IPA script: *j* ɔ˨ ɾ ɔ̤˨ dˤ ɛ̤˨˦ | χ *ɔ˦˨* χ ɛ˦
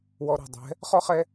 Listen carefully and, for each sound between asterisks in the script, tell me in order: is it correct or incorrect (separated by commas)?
incorrect, incorrect